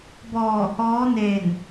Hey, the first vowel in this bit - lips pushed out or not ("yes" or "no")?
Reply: yes